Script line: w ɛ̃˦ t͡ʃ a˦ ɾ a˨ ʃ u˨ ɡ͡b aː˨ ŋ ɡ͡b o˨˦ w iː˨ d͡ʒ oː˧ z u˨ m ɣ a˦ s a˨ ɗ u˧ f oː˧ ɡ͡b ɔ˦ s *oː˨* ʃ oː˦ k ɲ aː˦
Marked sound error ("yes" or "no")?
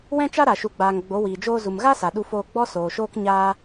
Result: no